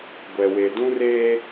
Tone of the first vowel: low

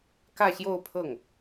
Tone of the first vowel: falling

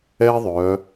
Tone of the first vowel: high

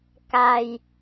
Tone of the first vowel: low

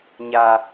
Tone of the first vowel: low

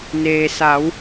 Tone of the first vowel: low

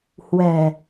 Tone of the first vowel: low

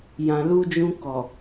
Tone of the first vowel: low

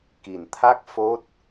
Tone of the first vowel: low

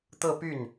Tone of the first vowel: falling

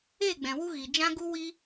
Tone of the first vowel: falling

